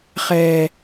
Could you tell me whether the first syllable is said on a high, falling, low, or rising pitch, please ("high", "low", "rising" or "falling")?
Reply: low